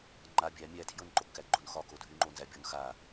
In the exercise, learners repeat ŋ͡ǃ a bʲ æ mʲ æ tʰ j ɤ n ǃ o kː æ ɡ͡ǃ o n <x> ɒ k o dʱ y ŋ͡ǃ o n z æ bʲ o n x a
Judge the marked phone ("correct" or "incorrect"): correct